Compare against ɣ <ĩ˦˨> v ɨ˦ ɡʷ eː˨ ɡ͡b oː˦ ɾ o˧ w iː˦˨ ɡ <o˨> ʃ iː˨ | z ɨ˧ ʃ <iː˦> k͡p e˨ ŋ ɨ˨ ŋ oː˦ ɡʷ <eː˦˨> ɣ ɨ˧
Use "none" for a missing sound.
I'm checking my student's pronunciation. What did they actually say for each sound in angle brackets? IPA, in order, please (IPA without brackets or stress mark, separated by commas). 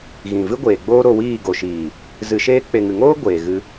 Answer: ĩ˨, o˨, eː˦, eː˨